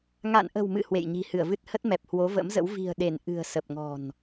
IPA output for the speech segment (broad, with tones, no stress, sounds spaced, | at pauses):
ŋ a̰˧˨ n ʔ ə̤˨˩ w m ɨ̰˧˨ h w ḛ˧˨ j ɲ i̤˨˩ h ɨ˧˩ ə̯ v ɨ˦˥ t̚ h ə˦˥ t̚ m ɛ˨˩ p̚ h w o˨˦ v ə̰˧˥ m z ə̰˧˥ w v i̤˨˩ ə̯ ɗ e˧˩ n ʔ ɨ̤˨˩ ə̯ s ə˨˩ p̚ ŋ ɔ̤˨˩ n